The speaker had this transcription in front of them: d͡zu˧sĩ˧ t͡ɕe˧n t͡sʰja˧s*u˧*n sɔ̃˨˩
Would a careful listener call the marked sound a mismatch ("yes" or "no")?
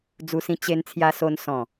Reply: yes